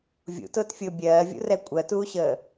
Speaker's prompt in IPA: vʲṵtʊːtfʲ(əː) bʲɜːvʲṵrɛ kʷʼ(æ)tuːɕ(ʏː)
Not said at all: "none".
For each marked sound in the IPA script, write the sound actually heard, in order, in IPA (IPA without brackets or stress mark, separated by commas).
ʊː, ɜ, əː